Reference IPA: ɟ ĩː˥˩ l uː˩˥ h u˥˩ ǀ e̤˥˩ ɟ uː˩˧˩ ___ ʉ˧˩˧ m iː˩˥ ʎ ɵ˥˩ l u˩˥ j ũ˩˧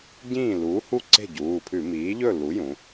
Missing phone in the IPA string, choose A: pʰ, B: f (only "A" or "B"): A